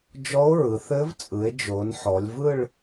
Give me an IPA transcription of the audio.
d͡ʒ ɔ˦˥ o̯ ɹ ɯ˨˦ θ ɘ˦˥ v t͡sʼ ɯ˨˦ e̯ d͡ʒ o˨˦ n ħ ɔ˨˦ lʲ v ɯ˥˧ ɭ

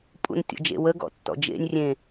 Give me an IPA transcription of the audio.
pʼ ṵ n tʲ ɔ̰ d͡ʒ ḛ w ə ɡ ɔ̰ tː ɔ̰ d͡ʒ ḛ nʲ rʲ ẽ

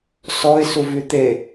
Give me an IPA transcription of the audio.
s ɔ ɪ̯ s u v y t̪ e

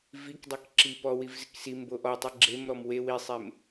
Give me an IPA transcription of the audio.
v i k dˤ i k ǁ i p ɔ w i v z ɪ k s i m b o ʔ ɔ tˤ i ɡ͡ǁ e m ɾ ɔ m w e w i sˤ e m

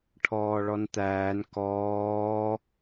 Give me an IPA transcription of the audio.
ʈʰ ɔː ɭ ɔ n t̪ æː n k ɔː

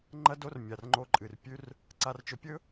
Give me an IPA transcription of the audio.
ŋ͡ǃ ɐ˦ d o˦ r mʲ a˨ r ŋ͡ǃ o˧ ǃʼ ɨ˨ r pʲ ʉ˧ r | ǀ a˧ r t͡ʃ ɵ˧ pʲ ɵ˦

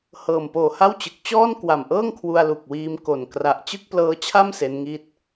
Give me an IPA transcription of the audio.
h ɤː˨˩ m p oː˨˩ h a˥˩ w t͡ɕ ɯ˨˩ k̚ t͡ɕ ɔː˥˩ n k w a˨˩ m ʔ ɤː˥˩ ŋ kʰ w u˧ a̯ l u˨˩ k̚ w iː˧ m k o˨˩ n k r a˨˩ ʔ t͡ɕ ɯ˥˩ k̚ p l ɤː˦˥ t͡ɕʰ a˥˩ m s e˦˥ n ŋ i˥˩ t̚

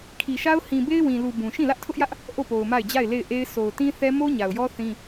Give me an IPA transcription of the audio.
kʰ i˨ ʃ a˦ ʊ̯ h ĩ˨ b e˦ ɪ̯ w ĩ˨ l u˨ b ũ˨ ʃ ĩ˦˨ l ä˦ ʔ tʰ ʊ˦ ʔ j ä˦ ʔ | ʔ o˦˨ p o˨ ʊ̯ m a˦˨ ɪ̯ d͡ʑ a˦˨ ɪ̯ l e˦˨ ɪ̯ ʔ e˦ ɪ̯ s o˨ ʊ̯ t ĩ˦ θ ɛ˦ m o˦ ɲ a˨ ʊ̯ j ɔ˦ θ ĩ˦

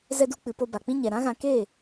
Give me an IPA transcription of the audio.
z ɛ˧ d u˧ k͡p ɨ˨ p o˧ b a˨ k͡p ĩ˦ ɲ ɛ˨ ɾ ã˦ ɣ ã˧ k eː˦˨

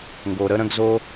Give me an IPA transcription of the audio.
ŋ ɡ o˨ ɾ ə˦ ɾ ə̃˧ ɡ z o˧

